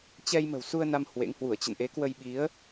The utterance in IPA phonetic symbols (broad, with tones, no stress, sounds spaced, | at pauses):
t͡ɕ ɛ˧ j m ə̤˨˩ w s u˧ ə̯ n a˧ m h w ḛ˧˥ ŋ h w u˧˩ ə̯ t͡ɕ ə̰˧˨ n ʔ e˨˦ k w ə˧ j ɓ i˨˦ ə̯